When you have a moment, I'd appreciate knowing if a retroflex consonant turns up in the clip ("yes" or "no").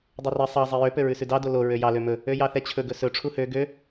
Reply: yes